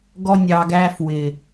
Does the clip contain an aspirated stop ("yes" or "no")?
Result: no